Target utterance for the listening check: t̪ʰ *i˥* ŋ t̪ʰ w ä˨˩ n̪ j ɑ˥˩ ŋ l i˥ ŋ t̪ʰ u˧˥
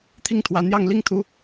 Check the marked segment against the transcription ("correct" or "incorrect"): incorrect